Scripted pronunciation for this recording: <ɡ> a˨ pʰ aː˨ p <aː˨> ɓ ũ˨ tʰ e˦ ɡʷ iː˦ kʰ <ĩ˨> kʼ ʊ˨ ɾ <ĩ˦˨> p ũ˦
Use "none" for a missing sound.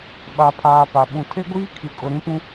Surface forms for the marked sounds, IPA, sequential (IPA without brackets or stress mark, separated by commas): ɓ, a˨, i˨, ĩ˨˦